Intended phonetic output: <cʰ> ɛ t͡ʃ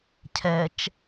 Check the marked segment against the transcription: correct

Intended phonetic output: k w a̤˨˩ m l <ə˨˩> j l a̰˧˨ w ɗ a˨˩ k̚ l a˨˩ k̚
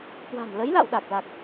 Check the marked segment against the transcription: incorrect: ə˨˦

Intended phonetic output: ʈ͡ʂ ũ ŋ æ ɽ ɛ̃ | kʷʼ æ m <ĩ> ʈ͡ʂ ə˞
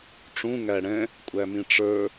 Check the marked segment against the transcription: correct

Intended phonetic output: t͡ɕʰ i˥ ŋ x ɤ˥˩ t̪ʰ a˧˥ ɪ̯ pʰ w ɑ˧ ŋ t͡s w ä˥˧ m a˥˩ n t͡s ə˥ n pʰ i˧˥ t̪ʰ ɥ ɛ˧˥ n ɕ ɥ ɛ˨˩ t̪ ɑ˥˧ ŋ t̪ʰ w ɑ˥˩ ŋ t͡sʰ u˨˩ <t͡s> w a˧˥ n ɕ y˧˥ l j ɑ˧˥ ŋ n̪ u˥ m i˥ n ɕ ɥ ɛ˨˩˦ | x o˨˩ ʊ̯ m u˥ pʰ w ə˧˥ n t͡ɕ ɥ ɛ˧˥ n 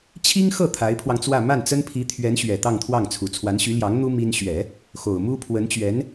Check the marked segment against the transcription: incorrect: t͡sʰ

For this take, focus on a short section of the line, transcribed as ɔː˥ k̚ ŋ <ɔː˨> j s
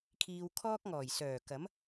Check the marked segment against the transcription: incorrect: ɔː˨˩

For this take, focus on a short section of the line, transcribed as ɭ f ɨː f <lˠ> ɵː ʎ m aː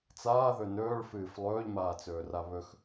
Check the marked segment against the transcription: correct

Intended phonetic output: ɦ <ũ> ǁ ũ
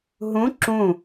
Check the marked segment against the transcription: correct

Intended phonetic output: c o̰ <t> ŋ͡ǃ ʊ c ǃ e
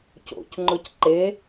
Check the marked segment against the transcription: incorrect: c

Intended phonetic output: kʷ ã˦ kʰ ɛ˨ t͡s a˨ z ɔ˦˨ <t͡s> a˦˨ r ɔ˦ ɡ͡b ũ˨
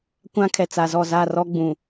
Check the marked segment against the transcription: incorrect: z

